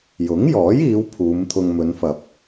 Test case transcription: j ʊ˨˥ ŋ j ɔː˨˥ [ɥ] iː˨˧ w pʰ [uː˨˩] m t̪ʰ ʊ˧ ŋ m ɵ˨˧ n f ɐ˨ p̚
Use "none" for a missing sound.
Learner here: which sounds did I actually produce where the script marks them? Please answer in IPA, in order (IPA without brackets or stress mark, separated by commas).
j, uː˨˧